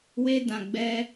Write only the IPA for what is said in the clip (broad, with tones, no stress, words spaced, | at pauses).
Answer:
we˧dã˨ ɡ͡bɛ˧